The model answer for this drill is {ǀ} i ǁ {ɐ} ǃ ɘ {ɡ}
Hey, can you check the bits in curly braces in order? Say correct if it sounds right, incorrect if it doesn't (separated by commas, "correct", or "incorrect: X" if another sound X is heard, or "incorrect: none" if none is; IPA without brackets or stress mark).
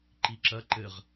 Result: incorrect: ǃ, correct, incorrect: ʁ